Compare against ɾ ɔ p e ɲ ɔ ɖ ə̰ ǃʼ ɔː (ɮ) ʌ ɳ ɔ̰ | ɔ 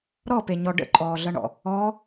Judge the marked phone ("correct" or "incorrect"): correct